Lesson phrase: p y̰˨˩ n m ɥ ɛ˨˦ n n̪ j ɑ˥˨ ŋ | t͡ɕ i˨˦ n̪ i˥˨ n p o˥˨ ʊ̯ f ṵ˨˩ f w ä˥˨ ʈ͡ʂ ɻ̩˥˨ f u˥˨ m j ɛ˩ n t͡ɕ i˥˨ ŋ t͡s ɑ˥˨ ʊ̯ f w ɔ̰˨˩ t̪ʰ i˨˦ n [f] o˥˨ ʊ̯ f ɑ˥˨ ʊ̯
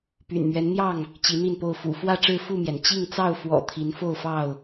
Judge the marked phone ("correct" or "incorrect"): correct